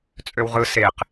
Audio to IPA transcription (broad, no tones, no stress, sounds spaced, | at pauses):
t͡sʼ ø w ʁ ɯ s e q